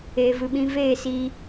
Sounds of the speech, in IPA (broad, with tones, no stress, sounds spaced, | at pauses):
e˨ v ɨ˨ ɓ ĩ˧ v eː˦˨ s i˦